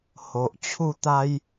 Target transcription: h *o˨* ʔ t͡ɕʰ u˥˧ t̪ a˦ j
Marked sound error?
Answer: no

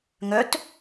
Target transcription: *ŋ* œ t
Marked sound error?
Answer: no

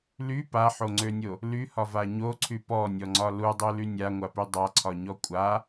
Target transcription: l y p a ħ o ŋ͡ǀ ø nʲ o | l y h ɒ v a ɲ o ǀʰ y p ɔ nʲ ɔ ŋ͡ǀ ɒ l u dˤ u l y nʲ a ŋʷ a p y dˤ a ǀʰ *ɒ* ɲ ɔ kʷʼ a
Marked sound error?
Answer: no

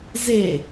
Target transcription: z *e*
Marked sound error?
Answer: no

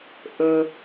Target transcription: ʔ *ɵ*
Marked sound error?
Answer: no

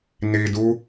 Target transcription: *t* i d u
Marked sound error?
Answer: yes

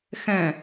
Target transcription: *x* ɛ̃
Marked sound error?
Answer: no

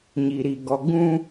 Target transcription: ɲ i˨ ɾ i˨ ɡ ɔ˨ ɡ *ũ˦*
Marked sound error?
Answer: no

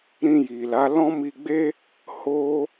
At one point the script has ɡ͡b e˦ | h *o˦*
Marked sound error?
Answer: no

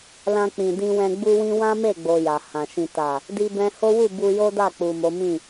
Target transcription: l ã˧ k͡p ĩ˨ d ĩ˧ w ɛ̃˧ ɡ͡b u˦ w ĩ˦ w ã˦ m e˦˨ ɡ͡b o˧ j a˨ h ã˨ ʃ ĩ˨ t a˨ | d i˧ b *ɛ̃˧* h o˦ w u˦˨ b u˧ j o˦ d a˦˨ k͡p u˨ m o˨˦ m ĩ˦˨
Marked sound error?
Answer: no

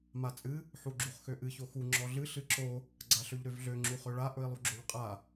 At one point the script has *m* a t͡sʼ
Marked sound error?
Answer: no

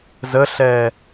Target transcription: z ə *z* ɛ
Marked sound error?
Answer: yes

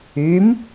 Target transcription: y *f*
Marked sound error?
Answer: yes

